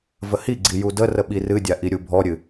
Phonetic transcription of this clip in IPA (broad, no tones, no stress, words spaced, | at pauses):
vəhiɡ͡ǀi judərə ɓirɨdʲa ʔiɾʲubʱɔɾʲɨ